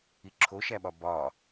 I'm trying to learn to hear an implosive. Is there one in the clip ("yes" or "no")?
yes